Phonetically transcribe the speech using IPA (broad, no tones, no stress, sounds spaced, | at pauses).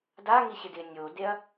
d a ŋ i ɕ ɪ d ɪ nʲ o d e ɐ̯